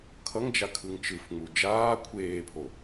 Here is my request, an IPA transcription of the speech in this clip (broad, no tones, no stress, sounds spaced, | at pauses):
kʰ ʌ ŋ d͡ʒ a kʰ ɯ ŋ t͡ʃ ɯ f ŋ͡m u d͡ʒ aː kʷʰ eː pʰ o